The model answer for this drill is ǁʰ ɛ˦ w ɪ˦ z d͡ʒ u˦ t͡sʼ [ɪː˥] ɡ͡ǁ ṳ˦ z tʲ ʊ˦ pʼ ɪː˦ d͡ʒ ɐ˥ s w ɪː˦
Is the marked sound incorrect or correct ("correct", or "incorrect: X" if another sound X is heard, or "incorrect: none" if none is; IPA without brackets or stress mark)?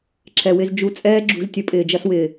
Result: incorrect: ɛː˥